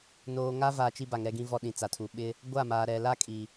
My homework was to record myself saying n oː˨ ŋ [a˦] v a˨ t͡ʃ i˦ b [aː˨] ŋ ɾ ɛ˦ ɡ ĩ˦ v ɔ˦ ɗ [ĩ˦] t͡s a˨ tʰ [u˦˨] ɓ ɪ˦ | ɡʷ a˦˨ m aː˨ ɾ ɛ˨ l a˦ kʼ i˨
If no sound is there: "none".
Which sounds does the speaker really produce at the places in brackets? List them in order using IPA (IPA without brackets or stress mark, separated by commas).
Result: a˦, a˨, ĩ˨, u˨